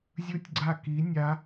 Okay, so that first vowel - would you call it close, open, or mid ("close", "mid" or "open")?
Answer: close